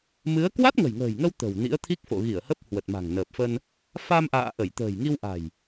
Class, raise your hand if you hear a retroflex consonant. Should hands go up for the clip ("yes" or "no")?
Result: no